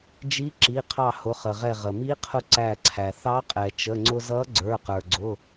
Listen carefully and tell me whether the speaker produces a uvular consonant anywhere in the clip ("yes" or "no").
yes